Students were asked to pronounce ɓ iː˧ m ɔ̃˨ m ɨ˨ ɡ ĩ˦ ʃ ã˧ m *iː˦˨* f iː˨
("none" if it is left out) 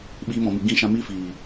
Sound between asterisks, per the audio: iː˦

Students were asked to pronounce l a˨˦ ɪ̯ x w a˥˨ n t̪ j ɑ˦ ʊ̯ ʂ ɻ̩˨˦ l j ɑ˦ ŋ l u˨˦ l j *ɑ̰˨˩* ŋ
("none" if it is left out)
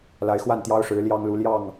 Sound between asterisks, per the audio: ɑ˥˨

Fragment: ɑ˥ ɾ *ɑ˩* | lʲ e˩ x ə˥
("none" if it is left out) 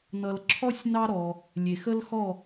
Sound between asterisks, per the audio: ɔ˩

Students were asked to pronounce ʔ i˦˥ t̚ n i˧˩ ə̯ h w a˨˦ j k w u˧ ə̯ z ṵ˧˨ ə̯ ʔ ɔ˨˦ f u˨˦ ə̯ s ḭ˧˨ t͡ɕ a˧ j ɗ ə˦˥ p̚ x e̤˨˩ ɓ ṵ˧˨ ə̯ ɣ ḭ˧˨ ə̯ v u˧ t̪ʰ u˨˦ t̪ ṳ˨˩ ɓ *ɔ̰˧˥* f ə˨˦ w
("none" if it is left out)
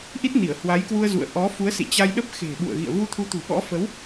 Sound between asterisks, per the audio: ɔ̰˧˥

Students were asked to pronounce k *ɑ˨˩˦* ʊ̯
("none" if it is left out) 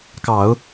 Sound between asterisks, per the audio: ɑ˨˩˦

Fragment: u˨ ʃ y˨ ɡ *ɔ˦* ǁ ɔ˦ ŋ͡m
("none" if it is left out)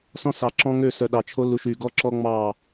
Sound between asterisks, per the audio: ɔ˦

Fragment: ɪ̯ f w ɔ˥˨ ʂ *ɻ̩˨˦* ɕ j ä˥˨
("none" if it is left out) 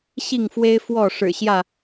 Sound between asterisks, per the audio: ɻ̩˨˩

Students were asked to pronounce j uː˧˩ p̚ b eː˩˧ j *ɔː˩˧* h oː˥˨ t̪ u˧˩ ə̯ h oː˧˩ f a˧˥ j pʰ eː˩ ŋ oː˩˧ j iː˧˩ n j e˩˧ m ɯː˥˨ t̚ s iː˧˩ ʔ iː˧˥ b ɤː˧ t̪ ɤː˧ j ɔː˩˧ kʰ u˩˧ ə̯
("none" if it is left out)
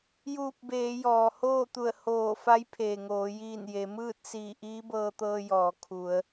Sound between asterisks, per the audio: ɔː˩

